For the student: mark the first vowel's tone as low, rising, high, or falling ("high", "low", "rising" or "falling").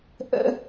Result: high